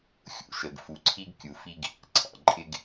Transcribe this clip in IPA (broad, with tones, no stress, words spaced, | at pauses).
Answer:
xʲṵ˦ʃə˨ɡ fu˨ǀʰi˦ɡ kʲu˨fi˦ɡ | ǀʰɑ̰˨ǃʼɪ˦ɡ